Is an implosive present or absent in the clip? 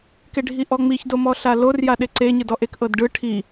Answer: present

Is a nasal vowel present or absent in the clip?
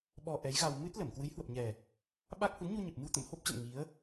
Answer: absent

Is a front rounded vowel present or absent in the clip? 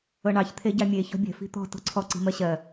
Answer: absent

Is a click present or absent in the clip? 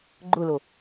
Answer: present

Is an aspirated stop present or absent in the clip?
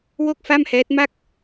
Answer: absent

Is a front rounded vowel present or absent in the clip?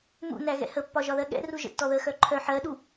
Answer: present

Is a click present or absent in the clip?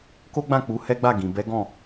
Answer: absent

